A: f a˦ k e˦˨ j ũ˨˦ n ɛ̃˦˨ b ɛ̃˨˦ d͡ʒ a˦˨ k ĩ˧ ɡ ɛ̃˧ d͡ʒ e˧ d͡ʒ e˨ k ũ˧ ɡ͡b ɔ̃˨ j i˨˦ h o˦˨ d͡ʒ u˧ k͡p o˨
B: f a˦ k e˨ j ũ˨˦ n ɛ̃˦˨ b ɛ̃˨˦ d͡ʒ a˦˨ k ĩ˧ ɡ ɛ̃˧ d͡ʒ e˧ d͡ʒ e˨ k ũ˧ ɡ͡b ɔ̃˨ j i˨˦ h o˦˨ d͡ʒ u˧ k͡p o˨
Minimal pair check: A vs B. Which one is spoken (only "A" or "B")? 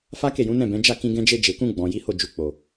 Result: A